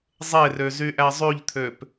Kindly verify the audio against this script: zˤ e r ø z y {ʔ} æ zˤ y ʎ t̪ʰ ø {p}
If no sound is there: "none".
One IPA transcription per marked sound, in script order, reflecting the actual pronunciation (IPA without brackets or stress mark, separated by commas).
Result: ʔ, p